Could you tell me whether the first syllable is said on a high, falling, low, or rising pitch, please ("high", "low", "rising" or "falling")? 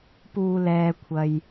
low